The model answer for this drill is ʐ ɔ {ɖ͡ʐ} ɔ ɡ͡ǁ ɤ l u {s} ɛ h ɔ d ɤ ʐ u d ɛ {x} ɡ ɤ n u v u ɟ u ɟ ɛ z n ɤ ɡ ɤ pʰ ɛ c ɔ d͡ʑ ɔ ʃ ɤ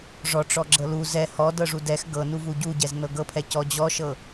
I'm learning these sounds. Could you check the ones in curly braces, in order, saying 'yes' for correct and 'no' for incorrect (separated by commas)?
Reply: no, no, yes